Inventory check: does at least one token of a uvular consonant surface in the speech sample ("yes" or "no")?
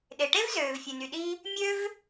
no